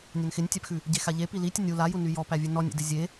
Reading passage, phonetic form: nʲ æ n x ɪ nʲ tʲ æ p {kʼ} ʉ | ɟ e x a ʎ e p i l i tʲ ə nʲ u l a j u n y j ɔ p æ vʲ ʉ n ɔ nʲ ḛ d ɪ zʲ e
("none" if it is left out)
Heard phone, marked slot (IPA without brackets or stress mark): x